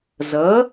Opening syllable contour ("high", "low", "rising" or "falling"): rising